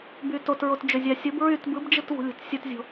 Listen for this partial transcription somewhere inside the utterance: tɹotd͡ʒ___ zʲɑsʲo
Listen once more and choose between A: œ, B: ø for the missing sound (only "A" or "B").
B